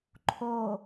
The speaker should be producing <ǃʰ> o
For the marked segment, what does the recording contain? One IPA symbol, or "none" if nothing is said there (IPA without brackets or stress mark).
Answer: ǃʰ